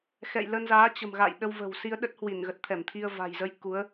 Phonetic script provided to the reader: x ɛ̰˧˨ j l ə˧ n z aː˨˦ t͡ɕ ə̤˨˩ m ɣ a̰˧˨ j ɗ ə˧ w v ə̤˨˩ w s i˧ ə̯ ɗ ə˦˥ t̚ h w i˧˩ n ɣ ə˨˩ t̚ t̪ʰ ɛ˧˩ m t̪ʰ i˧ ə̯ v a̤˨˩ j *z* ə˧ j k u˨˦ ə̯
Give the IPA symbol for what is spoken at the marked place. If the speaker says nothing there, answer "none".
z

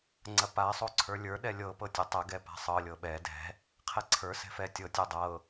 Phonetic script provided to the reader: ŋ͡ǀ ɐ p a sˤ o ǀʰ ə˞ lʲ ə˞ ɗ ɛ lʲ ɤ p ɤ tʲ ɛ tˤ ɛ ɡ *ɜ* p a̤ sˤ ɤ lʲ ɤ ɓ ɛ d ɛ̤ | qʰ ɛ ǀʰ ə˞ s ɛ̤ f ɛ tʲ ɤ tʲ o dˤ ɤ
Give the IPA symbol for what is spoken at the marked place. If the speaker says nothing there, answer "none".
ɛ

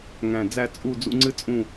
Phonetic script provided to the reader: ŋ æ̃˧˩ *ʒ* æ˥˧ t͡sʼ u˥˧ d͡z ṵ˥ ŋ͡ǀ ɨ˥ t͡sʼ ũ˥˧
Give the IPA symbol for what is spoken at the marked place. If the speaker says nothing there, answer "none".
d͡z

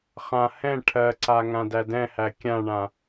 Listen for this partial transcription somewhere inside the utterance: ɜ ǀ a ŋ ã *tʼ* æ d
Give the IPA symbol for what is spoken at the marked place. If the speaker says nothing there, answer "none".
d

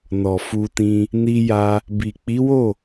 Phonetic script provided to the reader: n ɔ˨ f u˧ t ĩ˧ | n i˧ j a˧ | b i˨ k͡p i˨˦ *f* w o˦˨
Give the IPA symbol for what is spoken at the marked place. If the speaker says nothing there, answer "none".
none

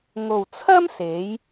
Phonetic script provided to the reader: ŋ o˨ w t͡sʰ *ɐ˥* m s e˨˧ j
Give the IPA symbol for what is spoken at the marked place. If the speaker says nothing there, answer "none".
ɐ˥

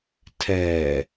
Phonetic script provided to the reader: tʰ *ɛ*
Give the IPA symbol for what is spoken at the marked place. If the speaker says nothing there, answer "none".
ɛː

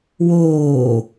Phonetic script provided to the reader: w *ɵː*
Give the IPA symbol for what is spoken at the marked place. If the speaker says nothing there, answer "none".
oː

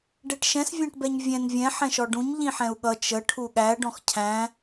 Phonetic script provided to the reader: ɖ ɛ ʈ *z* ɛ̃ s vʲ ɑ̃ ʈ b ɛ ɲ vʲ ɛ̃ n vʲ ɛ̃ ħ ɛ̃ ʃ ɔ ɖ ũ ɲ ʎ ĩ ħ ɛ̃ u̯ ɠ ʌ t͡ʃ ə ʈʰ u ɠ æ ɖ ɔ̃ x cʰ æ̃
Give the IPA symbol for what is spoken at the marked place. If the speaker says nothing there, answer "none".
ʃ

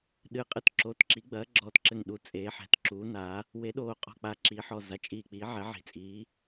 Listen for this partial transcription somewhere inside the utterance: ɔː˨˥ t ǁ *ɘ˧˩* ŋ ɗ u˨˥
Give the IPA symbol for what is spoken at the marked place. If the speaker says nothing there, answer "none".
ɘ˧˩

